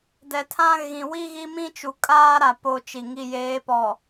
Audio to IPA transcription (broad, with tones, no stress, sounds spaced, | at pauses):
d ɛ˨ tʰ ã˦ ɣ ĩ˨ w i˦ ɣ i˦ m ĩ˦ t͡ʃ u˨ kʼ aː˦ ɾ a˨ p o˨ t͡ʃ i˨ ŋ i˨ j eː˨˦ p ɔ˨